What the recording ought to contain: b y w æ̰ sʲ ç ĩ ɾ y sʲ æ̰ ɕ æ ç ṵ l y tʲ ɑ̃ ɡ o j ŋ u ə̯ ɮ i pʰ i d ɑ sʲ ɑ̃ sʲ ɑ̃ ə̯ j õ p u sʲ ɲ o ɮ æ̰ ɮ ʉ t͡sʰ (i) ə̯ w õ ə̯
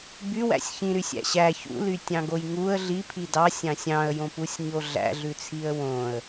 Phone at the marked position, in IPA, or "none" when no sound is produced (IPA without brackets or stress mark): i